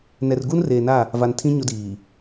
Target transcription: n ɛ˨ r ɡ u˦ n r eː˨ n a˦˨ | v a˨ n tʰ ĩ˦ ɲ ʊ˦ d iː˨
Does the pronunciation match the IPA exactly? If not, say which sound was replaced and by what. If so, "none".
none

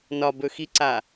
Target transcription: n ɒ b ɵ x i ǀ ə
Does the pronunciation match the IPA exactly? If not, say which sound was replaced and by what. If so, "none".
ə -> a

